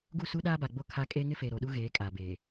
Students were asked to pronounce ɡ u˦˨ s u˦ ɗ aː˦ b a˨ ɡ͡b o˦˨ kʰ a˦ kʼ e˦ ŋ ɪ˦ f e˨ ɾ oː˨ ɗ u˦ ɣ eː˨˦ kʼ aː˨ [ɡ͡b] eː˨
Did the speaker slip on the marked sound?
yes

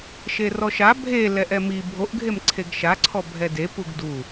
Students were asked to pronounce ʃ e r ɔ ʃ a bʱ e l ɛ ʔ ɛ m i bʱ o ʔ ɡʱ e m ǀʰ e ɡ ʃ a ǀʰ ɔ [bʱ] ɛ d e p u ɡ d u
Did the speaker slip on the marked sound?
no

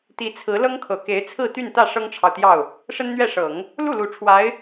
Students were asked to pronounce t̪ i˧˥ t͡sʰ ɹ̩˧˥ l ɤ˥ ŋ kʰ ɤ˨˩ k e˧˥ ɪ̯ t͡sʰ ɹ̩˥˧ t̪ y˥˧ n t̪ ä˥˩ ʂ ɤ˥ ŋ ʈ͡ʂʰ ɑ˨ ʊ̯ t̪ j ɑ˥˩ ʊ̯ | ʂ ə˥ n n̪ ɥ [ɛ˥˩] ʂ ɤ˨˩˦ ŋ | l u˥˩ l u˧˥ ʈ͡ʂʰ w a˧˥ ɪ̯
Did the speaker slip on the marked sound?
no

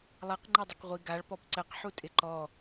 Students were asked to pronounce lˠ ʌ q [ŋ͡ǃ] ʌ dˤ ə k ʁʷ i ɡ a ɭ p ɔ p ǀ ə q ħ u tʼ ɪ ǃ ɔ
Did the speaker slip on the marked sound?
no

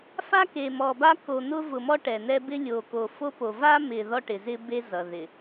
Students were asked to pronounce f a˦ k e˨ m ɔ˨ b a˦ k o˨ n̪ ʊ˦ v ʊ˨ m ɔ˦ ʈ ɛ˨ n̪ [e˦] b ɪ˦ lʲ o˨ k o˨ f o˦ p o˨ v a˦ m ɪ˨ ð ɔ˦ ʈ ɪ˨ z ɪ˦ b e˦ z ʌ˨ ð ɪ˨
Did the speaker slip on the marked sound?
yes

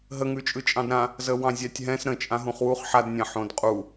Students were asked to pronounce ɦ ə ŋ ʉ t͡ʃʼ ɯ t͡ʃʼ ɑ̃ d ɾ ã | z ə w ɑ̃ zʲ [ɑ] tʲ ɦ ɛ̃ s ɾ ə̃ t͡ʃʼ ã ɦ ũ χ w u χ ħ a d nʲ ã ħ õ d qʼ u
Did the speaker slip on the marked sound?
no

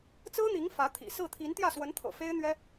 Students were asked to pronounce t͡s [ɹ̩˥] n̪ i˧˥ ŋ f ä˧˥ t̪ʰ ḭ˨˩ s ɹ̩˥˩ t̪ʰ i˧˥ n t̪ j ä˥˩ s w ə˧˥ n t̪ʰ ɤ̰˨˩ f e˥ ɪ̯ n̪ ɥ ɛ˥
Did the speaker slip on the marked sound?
no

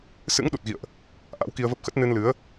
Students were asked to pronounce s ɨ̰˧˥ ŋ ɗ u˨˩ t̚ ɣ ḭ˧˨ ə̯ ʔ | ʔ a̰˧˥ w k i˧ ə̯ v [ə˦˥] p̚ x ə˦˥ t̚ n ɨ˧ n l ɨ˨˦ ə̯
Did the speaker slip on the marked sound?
no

